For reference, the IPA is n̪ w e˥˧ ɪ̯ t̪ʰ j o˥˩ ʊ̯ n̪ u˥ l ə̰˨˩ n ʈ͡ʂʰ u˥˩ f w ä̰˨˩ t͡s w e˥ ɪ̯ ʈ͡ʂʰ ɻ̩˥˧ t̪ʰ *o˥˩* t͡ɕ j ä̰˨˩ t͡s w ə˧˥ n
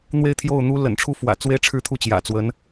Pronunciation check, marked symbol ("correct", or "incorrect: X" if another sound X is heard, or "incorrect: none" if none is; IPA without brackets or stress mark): incorrect: u˥˩